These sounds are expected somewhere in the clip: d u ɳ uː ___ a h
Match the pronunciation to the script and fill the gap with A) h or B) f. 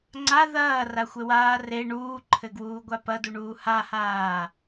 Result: A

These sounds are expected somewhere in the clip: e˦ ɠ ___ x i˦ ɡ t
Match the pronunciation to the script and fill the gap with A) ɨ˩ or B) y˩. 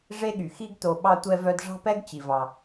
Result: B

